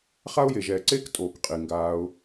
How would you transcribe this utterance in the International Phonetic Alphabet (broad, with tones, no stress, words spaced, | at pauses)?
χa˦ʊ̯je˨ʒɛː˨ǀeː˦k tʼoː˨kqʼi˨ŋɡaː˧ʊ̯